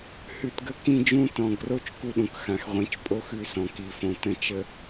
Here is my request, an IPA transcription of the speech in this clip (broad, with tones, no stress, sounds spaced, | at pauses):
h ʉ˨ t ɡ ə˦˨ k ĩ˦ d͡ʒ ũ˦ t ɔ̃˨ ɡ r o˦ t͡ʃ k u˦ ɗ ũ˨ k x ã˨ x ʁʷ ĩ˨˦ t͡ʃ pʼ o˦ x ʉ˦ s ɔ̃˨ k i˨ f õ˨ t ə̃˦˨ t͡ʃ ə˦